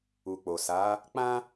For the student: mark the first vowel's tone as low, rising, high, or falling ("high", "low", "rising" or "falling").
low